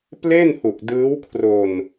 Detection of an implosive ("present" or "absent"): absent